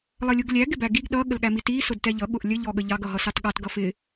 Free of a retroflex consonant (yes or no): yes